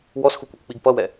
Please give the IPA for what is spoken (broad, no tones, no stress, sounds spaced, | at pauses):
w ɔ s x u kʷ ɛ kʷ k͡p i ɡ p ʌ w ɛ